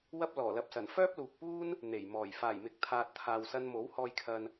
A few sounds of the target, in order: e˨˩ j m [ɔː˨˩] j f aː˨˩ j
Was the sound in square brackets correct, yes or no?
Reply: yes